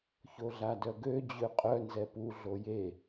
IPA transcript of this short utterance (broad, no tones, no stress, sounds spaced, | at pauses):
ç o ɮ a d œ ɡ ø d͡ʑ ø qʼ œ n z ɛ p u ɮ o j e